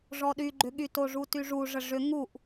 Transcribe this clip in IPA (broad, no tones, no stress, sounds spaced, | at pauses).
ʐ ɔ ɗ y ɡ͡ǃ ʏ ɠ y t o ʐ u t y ʐ u ʐ ə ʐ ʏ ŋ u ʔ